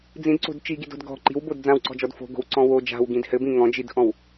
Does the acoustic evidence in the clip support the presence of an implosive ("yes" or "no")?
no